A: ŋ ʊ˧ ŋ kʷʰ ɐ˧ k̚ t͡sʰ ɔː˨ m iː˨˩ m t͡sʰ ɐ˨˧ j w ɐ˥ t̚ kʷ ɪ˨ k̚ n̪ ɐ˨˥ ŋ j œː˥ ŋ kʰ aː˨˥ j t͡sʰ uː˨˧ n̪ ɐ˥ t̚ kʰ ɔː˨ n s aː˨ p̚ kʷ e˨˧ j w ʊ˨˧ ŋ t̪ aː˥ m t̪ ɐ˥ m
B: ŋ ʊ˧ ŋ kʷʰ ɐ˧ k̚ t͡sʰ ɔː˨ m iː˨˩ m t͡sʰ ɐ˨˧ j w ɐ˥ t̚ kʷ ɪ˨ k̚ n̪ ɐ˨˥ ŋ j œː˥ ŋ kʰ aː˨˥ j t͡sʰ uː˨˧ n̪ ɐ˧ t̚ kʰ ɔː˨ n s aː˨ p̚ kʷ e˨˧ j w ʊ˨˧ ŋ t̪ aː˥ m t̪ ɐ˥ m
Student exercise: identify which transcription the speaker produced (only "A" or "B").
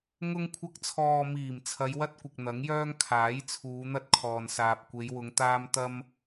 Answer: A